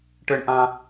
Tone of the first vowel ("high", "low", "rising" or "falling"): high